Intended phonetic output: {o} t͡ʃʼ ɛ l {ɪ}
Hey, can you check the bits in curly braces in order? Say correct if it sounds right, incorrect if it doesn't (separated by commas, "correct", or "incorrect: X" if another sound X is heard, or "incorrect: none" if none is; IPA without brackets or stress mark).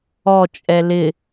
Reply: incorrect: ɔ, correct